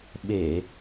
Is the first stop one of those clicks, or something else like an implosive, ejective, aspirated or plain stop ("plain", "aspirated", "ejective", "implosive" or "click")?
implosive